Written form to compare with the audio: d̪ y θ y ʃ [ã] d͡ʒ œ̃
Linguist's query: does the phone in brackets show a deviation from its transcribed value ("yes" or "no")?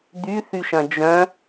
yes